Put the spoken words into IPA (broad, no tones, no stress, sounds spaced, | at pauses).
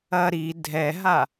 ɐ ɾ i dʱ ɛ ɦ a